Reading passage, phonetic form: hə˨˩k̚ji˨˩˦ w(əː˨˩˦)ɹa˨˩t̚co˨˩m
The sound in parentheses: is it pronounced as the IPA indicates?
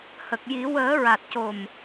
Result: yes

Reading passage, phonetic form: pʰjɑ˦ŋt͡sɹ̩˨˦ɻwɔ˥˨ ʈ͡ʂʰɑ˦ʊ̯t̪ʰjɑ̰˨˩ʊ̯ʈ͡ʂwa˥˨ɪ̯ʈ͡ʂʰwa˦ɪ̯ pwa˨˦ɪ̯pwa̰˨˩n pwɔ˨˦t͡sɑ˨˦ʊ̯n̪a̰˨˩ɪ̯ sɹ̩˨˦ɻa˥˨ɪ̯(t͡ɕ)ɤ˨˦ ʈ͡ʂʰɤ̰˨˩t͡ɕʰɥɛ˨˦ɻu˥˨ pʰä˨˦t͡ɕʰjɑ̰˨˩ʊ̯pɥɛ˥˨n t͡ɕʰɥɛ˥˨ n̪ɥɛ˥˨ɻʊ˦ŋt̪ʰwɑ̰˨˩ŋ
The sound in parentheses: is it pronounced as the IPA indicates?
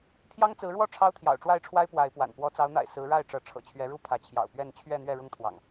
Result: no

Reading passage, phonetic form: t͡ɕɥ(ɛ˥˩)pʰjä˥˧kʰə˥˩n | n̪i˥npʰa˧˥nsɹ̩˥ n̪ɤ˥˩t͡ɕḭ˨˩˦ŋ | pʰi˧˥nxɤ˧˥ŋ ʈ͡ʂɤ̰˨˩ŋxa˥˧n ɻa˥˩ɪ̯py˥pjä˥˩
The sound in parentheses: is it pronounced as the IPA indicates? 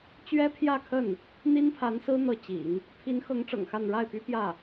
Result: no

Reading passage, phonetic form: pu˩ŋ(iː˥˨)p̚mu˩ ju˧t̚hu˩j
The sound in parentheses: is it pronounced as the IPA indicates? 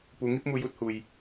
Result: no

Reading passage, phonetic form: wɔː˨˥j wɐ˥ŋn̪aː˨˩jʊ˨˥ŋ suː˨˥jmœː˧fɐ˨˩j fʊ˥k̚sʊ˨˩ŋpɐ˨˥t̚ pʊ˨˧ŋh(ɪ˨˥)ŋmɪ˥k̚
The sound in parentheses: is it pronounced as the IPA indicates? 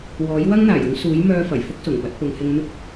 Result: no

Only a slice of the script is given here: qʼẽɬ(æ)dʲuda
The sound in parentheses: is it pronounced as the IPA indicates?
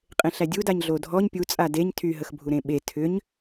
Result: yes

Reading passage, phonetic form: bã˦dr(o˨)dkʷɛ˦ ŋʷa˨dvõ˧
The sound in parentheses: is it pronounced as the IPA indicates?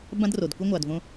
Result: yes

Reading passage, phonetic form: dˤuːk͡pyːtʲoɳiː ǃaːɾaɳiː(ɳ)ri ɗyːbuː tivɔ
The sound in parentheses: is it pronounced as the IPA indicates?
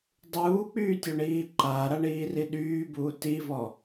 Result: no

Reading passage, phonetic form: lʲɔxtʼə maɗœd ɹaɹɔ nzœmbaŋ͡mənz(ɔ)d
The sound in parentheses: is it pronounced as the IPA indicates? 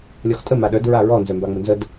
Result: no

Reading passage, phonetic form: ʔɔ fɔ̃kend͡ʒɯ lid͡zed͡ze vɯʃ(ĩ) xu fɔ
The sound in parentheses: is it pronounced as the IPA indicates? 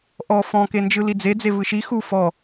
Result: no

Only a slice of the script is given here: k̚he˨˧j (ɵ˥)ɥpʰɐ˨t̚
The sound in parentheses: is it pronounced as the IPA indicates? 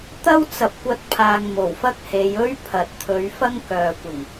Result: yes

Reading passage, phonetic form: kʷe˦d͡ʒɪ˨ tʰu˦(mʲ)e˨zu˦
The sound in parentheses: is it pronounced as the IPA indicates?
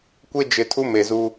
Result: no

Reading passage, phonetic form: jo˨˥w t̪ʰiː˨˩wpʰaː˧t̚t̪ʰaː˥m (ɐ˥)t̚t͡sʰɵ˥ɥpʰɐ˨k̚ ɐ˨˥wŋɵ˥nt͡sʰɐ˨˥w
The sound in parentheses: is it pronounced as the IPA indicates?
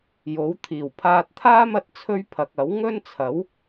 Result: no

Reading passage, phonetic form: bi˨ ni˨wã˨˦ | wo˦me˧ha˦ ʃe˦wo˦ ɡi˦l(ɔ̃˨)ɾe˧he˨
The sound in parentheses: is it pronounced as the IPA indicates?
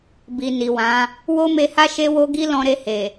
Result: no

